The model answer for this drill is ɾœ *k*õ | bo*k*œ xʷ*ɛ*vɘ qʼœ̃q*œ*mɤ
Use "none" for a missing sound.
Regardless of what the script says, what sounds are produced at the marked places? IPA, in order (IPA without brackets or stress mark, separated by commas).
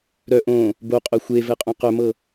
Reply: ʔ, qʼ, e, œ